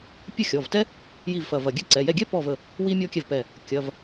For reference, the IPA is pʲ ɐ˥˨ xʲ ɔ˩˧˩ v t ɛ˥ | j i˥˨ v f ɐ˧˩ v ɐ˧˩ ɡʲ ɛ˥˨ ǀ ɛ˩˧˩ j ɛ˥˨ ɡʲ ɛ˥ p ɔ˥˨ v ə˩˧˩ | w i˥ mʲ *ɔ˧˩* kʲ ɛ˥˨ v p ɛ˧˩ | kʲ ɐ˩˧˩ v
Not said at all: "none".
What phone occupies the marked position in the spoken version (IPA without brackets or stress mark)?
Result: ɔ˥